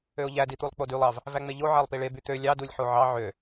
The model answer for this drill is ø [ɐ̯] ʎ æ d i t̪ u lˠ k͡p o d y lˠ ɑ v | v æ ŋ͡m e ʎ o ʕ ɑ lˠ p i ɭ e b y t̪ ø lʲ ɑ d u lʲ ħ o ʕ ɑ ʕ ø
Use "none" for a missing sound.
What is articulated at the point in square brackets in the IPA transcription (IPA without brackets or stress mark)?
o̯